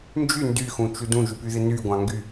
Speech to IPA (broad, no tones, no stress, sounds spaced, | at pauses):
n d͡ʒ y n d y x ũ t͡ʃ u d ũ ʒ y p y ð ɪ n y ɡʷ ɑ̃ ŋ ɡ y